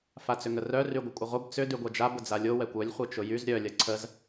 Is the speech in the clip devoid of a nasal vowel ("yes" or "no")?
yes